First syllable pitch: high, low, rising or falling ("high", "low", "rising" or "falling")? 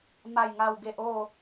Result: falling